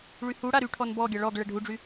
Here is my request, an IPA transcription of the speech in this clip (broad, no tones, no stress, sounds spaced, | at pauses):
ɭ y h u ɽ a ɾ y ʈʰ ɔ n b ɔ ɡʲ a ɭ ɔ ɡ ɭ ɛ ɖʱ u ɖ͡ʐ y